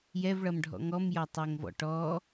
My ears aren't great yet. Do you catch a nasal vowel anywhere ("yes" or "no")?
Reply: no